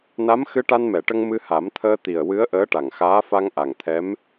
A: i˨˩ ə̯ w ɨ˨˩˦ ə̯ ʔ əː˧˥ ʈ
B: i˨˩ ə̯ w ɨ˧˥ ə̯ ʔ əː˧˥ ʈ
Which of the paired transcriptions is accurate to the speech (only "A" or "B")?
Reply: B